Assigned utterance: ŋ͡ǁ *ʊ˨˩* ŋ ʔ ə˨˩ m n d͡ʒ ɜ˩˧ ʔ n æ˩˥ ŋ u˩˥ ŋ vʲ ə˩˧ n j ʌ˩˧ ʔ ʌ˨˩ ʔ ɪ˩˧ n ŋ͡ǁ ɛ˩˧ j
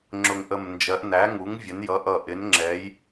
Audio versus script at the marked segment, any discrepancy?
no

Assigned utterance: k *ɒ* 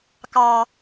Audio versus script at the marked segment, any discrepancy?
yes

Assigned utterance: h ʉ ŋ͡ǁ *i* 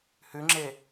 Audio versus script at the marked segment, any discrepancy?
yes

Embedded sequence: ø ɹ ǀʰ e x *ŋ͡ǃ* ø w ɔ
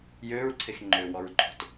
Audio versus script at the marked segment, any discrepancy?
no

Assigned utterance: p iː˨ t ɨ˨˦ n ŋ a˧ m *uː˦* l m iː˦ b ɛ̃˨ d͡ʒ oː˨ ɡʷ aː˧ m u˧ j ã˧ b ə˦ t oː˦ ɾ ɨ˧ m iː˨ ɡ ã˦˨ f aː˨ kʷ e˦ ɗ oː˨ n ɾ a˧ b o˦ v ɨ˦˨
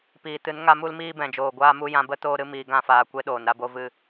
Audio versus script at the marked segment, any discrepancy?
yes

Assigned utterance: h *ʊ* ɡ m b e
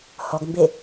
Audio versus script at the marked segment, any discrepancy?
yes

